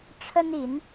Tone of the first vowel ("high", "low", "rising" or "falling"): high